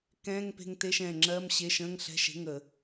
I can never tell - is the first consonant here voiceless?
yes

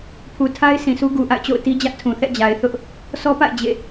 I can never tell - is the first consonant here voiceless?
yes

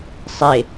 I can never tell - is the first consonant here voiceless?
yes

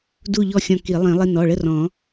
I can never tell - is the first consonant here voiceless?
no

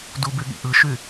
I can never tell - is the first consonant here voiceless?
no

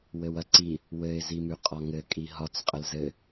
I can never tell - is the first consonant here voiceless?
no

